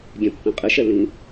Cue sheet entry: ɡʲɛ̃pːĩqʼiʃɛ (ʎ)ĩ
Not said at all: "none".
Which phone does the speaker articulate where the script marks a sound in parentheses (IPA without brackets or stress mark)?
l